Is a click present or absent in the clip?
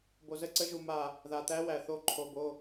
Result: present